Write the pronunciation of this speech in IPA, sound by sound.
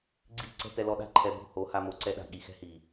ɡ͡ǀi˦ ǀɛ̤˦tɛ˧lɔ˧ɗa̤˦ ǃʰɛ˧bo̤˦˨ho˨˦ ha˧mo˨˦ ǀɛ˧ɗa̤˨ ɠi˨xɛ̤˦hi˨

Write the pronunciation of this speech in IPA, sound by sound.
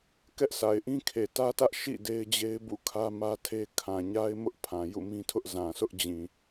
kɛ˦ʔsa˨ɪ̯ʔĩ˦kʰe˨ tä˦tä˦ʔ ʃḭ˦˨ de˦ɪ̯d͡ʑe˦ɪ̯bṵ˦˨kʰä˦ mä˦tʰe˦ kʰã˨ɲa˦ɪ̯ mʊ˦ʔpʰã˨ jṵ˦˨mĩ˦tʰʊ˦ʔ zã˨sʰʊ˦ʔd͡ʑĩ˨

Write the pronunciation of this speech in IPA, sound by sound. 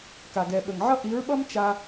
ka˨ɡɛ˨ɓə˨ŋʕʌ˦ ʔi˨˦ɹɓʌ˦m t͡ʃa˧

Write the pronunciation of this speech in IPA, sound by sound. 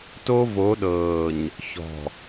to˦vo˨˦ɗɤː˨ɲ | çɔ̤˨

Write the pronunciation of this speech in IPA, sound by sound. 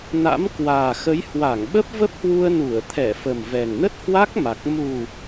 na̰˧˥mkwaː˨˩xə˨˦j hwa˧˩ŋ ɓə˦˥p̚və˦˥p̚hwu˧ə̯ nu˧˩ə̯ t̪ʰɛ˧˩ fə˨˩mvɛ˨˩ŋnə˦˥t̚ hwa˦˥k̚ma˨˩k̚ mu˨˩

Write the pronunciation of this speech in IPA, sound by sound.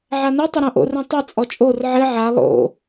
ʕanɨ tˤɘɾõʔo̰r ĩtˤɨ t͡sʼɔt͡ʃʼor ʕɘ ʕa lˠo̰

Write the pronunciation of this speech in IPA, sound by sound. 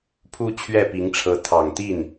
pʰu˥t͡ɕʰɥɛ˥˩pi˧˥ŋʈ͡ʂʰɤ˧˥ t̪ʰɑ˨˩ŋt̪i˥˩n

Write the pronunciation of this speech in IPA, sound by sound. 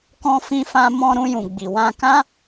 kɔ̃˧ fĩ˧fã˧ mɔ̃˧ɾũ˧jũ˨ ɡ͡bi˨wã˧ kã˦

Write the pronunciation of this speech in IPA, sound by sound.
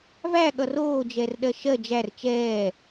væɠʌ roːd͡ʒɛrɗɜ ʃɜ d͡ʒær t͡ʃɛː

